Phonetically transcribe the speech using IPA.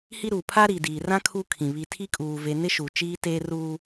h i˦ ɾ uː˨ pʰ a˦ ɾ iː˨ d iː˨ r ã˦ kʰ u˦ kʰ ĩ˨ β i˨ tʰ i˦ kʼ uː˨ v eː˨ n ɪ˦ ʃ uː˨ t͡ʃ iː˦ t eː˦ r uː˦

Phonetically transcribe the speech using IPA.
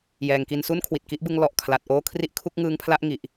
j ɛː˨˩ ŋ k i˧ n s u˥˩ n kʰ w i˨˩ t̚ k i˦˥ ʔ b ɯ˦˥ ŋ l ɔ˨˩ ʔ kʰ l a˨˩ t̚ ʔ oː˥˩ kʰ r i˥˩ ʔ kʰ u˥˩ k̚ ŋ ɯː˦˥ ŋ pʰ l a˥˩ ʔ ŋ i˨˩ ʔ

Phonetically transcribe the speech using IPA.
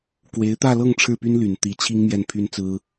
k w e˧˥ ɪ̯ t̪ ä˥˧ l ɤ˥˧ ŋ ʈ͡ʂʰ ɻ̩˥˩ p y˥ n l y˨˩ n t̪ i˧˥ t͡ɕʰ i˥ ŋ m j ɛ˥˩ n pʰ y˥ n t͡s ɹ̩˥

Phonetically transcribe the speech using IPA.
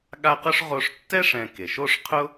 ɠ a˦ q ʊ˥ ʂ ʁ o˦ ʂ tː ɛ˥ ʂ ɛ̃˨ k e˩ ʃ o˦ ʂ qʰ ʊ˥

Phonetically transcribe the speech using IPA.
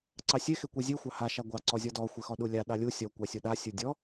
ǀ ɑ sʲ e x e kʷ e zʲ e xʷ ɑ h a ʃ a ɡʷ ɑ ǀ ɔ zʲ ɔ d ɔ xʷ e x ɔ ɗ u lʲ a ɗ ɑ lʲ u sʲ ɔ kʷ ɑ sʲ u ɗ a sʲ u dʲ ɔ

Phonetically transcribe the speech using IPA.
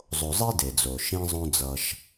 zˤ o˨ zˤ i˦ d e˨ d͡z o˨ ʃ ĩ˦ zˤ õ˦ d͡z ʌ˧ ʃ

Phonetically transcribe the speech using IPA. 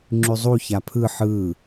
ŋ͡ǁ ʉ zˤ u ç a pʰ ɯ ħ ɯ

